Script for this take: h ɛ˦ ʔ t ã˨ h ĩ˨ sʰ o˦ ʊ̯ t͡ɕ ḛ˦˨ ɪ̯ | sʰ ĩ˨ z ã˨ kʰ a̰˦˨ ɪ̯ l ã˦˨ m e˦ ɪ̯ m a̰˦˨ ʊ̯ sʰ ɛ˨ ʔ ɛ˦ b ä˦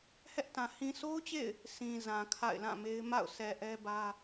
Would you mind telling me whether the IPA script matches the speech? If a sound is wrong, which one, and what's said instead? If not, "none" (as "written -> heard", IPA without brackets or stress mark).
none